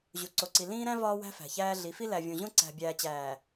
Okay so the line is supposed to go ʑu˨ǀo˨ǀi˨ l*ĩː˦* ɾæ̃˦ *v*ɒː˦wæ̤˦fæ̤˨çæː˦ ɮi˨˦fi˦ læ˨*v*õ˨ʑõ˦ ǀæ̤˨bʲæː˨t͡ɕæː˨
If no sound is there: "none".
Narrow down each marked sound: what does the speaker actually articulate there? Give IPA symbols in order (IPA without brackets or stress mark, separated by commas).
ĩː˦, v, vʲ